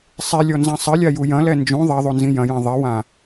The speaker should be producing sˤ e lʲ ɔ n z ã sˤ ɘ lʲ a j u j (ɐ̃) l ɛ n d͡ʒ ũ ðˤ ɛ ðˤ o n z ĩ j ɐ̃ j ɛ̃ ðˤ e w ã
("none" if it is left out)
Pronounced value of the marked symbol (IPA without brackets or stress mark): ɐ̃